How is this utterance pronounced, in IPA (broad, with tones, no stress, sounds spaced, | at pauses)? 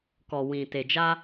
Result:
k ɔ˨ w ĩ˨ t e˨ d͡ʒ a˧